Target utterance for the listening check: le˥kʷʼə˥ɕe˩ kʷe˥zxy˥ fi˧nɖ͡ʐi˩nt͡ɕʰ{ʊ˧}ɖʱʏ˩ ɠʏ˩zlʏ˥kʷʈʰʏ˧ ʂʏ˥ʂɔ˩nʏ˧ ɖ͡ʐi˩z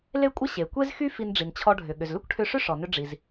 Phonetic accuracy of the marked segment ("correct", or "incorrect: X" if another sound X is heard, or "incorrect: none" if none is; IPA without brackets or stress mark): incorrect: ɔ˧